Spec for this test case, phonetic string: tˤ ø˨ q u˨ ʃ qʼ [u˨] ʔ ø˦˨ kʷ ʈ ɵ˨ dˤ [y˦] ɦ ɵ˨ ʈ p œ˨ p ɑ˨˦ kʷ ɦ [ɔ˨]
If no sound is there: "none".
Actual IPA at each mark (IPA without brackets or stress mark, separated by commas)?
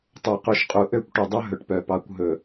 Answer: u˨, ø˦, ɵ˨